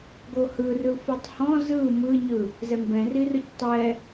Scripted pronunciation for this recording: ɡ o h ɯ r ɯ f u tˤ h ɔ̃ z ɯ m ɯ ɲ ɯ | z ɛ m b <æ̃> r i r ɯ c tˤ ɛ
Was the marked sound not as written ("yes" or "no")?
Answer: yes